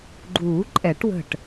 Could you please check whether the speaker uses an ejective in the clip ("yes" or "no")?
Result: yes